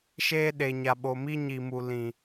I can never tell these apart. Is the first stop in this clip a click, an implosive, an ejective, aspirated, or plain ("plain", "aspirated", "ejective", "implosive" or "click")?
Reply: implosive